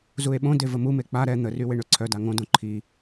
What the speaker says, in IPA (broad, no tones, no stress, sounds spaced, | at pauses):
z u e̯ ɓ õ d e v ə m u m e k͡p a ɾ ɛ n̪ ə r y w e ɳ ø ǀʰ œ d a ŋ õ d õ ǃʰ i